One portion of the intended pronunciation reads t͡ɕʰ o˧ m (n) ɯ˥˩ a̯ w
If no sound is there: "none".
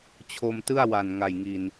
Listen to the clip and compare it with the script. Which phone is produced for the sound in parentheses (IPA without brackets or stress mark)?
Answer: t